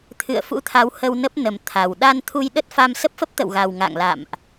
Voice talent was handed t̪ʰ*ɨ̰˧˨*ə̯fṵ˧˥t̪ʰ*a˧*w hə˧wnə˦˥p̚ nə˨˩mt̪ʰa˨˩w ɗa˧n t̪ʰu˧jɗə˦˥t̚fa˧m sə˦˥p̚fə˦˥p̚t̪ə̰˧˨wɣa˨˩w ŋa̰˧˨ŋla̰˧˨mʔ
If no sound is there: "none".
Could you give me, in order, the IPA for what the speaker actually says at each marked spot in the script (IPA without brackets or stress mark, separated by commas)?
ɨ̰˧˨, a˨˦